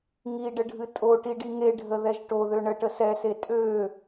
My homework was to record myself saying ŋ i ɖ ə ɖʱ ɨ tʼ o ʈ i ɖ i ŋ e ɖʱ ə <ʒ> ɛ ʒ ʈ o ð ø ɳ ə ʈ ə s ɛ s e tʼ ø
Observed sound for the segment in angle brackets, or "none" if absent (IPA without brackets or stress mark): ð